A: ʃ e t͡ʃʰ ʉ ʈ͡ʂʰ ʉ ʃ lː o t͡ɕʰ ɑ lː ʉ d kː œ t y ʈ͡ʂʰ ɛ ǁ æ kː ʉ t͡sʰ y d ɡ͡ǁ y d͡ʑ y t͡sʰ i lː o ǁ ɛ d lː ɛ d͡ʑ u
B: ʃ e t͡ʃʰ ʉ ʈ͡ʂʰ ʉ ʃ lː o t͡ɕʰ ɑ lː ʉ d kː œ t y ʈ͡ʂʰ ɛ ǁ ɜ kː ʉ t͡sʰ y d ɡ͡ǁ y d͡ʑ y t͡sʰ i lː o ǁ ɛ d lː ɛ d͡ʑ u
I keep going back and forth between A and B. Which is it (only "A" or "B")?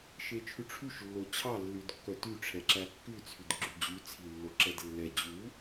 A